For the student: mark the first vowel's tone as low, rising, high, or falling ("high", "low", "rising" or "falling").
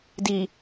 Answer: low